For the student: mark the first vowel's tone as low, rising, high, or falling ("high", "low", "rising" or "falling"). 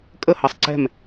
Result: falling